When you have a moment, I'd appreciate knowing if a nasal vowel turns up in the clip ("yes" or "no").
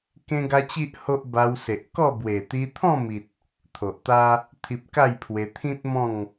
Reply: yes